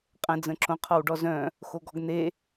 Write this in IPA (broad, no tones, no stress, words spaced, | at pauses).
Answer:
qʼə̃ d͡zə̃ǁõ qʰɔwɖɔzœ̃ | xoɡɔɡn̪e